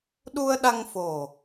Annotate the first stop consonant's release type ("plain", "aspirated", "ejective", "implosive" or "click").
implosive